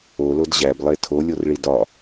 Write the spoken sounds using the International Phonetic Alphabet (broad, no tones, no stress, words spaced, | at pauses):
olod ʑæblˠe tʰolʲorɭi dɒ